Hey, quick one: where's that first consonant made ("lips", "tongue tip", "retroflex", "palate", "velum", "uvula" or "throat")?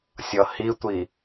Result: tongue tip